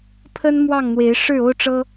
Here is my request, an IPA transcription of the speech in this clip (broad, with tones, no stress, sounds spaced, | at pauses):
pʰ ə˦ n m w ɑ˥˨ ŋ n̪ w e˨˦ ɪ̯ ʂ ɻ̩˥˨ o˦ ʊ̯ ʈ͡ʂ ɤ˦